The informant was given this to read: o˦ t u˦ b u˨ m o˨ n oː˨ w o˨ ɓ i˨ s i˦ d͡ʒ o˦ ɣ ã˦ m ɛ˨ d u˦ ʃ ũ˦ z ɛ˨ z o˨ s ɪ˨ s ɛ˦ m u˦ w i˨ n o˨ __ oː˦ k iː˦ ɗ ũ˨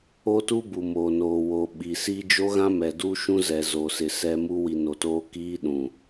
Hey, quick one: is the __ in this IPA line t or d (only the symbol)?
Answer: t